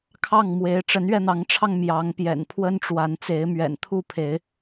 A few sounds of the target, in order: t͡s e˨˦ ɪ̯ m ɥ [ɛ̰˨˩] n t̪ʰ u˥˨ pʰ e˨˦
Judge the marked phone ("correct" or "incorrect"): correct